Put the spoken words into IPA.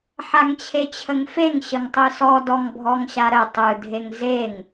ħaŋt͡ɕʰet͡ɕʰəŋfeŋ ɕəŋtˤɯsɔ dɔŋbʱɔŋɕaɾə tˤɯ dʱeŋzeŋ

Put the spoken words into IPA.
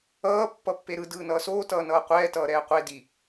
ʌː pːʌpːeɾɯ dɯːnʌːsoː tʌːnʌːqʷɛː tʌːɾɛːqʷe di

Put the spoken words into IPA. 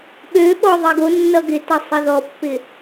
ɓø ɓɔðˤiɡo nːʌɡɪtʌsˤɘ ðɔpːɪ

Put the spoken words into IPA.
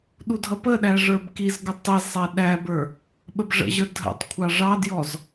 ɗudʱʌpəɗæ ʐə˞bkizɡə tˤizsˤɛ ɗæbə˞ | ɓəbʐə̰ʑə˞ dʱə̰tˤ kʷʰɑʐɑdjɔz

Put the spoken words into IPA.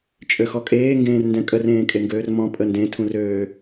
t͡ʃʼøxɔkʼeː ŋɡẽːrndɛ̃kʼər ẽːkʼeŋɡøːrmɔ̃ pʼəndẽ tʰũrøː

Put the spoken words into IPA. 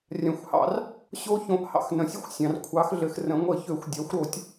rʲã˩xʷhɑ̰˧˩˧r | ɕo˦˥çõ˩˥ʔ hɑ̰˩˥xnə̃˩sʲɘ˦˥xʷsʲɑ̃˩r kʷʰɑ˩˥xɮɘ˩x rə̃˩˥ŋʷə˧˩˧çø˧˩˧xʷ dʲa˩˥xʷɾo˧˩˧tʲ

